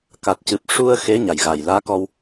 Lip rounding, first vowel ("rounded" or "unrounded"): unrounded